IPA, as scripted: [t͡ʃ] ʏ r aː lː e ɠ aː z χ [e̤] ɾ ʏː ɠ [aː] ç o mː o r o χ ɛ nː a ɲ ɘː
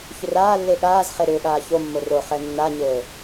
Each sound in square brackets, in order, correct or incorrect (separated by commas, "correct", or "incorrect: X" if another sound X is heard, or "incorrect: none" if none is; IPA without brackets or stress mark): incorrect: ç, incorrect: e, correct